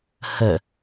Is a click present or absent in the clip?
absent